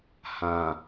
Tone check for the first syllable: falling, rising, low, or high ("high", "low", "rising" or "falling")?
low